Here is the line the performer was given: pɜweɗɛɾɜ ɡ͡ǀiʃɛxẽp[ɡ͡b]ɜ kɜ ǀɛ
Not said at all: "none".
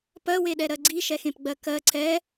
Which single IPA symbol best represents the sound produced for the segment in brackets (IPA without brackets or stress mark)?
ɡ͡b